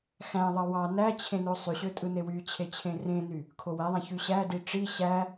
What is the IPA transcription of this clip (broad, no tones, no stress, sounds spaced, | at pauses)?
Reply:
x æ̃ ðˤ ɑ w ɑ n æ t͡ɕʰ ẽ n o sˤ y ɕ ø tʼ ɯ n e w y t͡ɕʰ e t͡ɕʰ ẽ r ẽ n y | kʰ o w æ ðˤ æ̃ ç y ɕ æ d i ʈ͡ʂ i ɕ æ